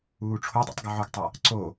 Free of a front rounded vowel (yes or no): no